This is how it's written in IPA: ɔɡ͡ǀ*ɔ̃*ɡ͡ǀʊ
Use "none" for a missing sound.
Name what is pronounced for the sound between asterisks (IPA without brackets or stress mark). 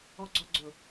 ɔ